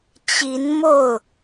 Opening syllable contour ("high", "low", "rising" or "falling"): rising